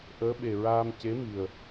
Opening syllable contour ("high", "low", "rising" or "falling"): rising